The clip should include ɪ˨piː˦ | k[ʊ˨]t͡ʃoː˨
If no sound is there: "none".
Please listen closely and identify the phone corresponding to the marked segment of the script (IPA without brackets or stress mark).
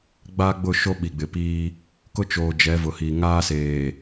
ʊ˦